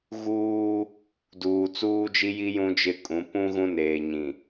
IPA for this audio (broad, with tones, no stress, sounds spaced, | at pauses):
ɣ uː˦ | d uː˨ t͡s uː˦ d͡ʒ i˦ j i˦ j ũ˦ d͡ʒ ɪ˦˨ kʼ ũ˨˦ p ũ˦ ɣ ũ˦ n eː˨ ɲ ĩ˨